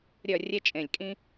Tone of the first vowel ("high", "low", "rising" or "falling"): falling